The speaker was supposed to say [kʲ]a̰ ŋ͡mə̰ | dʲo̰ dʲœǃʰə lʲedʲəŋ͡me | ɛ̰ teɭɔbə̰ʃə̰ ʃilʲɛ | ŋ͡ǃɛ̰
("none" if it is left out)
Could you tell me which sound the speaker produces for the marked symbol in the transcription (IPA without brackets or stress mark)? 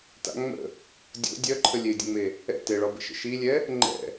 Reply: t